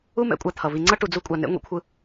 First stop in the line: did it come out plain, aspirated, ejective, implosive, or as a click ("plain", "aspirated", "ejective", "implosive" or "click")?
ejective